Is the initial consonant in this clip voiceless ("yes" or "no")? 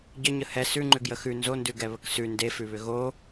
no